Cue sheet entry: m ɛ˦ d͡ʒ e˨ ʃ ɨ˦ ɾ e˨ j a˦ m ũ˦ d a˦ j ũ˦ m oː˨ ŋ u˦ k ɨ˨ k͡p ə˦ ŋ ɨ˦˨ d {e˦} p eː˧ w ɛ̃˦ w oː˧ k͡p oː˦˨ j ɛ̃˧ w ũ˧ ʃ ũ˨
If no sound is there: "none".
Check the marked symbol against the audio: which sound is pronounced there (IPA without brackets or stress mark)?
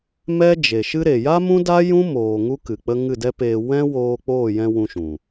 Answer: ɛ˦